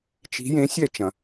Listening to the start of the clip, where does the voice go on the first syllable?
rising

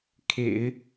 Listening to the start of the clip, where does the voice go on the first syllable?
low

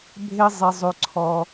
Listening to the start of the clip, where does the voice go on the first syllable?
high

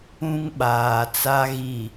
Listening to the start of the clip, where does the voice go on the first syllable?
high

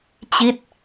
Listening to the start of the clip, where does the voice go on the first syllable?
falling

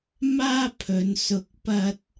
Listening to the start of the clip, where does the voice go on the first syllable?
high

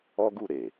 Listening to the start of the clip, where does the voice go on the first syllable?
high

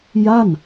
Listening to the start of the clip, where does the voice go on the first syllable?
falling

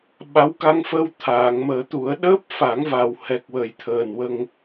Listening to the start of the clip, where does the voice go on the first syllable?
rising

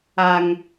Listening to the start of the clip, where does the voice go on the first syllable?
high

